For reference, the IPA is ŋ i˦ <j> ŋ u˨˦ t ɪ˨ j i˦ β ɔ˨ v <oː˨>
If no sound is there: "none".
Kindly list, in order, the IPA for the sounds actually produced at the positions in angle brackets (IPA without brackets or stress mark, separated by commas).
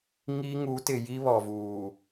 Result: none, uː˨